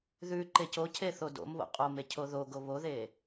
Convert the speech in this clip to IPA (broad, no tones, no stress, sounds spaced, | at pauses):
ð ʉ ǃ e c o cʰ e θ o d o̰ m β o̰ qʼ o m e cʰ o ð o ɡ o β o ð e